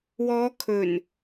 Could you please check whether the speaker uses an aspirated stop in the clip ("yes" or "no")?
yes